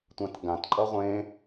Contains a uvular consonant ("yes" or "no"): yes